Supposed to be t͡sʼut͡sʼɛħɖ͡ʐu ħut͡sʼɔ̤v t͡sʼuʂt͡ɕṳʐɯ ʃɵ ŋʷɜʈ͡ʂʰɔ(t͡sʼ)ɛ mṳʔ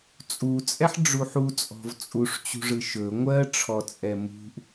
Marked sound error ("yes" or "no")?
no